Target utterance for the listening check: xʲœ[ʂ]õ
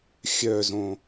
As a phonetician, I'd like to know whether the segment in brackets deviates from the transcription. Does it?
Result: yes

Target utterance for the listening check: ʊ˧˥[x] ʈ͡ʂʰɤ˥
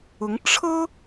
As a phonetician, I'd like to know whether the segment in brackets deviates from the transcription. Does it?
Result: yes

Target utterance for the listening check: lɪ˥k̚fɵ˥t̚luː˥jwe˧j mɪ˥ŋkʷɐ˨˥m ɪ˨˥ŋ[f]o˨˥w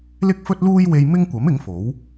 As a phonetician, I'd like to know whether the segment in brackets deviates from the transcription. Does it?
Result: no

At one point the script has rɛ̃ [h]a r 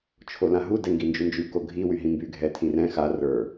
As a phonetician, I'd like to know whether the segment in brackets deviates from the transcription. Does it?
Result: yes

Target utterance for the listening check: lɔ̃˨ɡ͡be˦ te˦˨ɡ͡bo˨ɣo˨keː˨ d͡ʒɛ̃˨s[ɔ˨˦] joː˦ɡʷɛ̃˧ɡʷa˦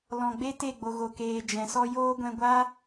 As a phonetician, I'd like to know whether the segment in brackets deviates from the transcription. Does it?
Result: yes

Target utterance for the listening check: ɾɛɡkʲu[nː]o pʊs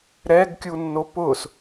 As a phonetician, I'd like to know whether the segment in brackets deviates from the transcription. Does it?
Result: no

